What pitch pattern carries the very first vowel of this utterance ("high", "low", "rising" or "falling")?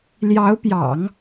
rising